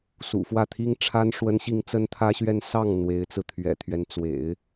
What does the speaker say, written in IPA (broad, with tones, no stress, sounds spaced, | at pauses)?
s ṵ˨˩ f w ä˥˩ t̪ʰ i˥ ŋ ʈ͡ʂʰ a˥ n ʂ w ə˥ n ɕ i˥˩ ŋ t͡s ə˥ n t̪ʰ ä˥ ɕ ɥ ɛ˥˧ n s ɑ˥˩ ŋ n̪ w e˧˥ ɪ̯ t͡s ɹ̩˧ t̪ʰ ɥ ɛ̰˨˩ t̪ʰ ɥ ɛ˦ n t͡s w ḛ˨˩˦ ɪ̯